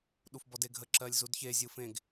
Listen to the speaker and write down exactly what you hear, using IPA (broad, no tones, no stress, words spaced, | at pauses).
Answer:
ɗufbɔdeɡʱə ǁɜlʲzudçe zʲɯfẽɡ